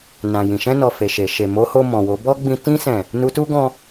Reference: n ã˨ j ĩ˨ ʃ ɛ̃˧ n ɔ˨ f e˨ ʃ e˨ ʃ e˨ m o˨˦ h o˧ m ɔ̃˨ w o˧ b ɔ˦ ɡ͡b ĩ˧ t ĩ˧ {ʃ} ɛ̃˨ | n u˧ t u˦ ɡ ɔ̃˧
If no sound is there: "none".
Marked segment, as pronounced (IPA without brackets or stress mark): s